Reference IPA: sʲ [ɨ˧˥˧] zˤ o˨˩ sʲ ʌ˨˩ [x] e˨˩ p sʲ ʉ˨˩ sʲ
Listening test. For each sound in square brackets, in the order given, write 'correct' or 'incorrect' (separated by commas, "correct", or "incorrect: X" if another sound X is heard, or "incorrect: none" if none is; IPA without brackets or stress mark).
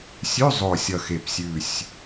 incorrect: ʉ˧˥˧, correct